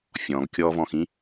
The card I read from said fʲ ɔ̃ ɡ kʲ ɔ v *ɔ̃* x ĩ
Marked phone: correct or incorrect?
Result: correct